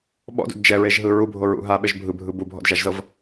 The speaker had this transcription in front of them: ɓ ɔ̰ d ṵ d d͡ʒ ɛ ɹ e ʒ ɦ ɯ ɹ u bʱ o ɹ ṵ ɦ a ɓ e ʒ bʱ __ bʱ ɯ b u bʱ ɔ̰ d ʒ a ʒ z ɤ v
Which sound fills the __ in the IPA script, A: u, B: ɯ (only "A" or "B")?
B